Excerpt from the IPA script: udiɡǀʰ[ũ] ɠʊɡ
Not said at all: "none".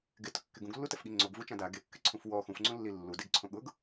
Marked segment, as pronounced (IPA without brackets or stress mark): õ